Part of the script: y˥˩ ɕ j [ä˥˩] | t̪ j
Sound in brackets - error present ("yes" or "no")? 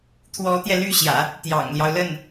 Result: yes